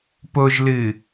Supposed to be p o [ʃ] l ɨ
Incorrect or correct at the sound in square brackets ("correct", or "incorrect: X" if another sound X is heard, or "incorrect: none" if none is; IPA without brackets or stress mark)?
incorrect: ʒ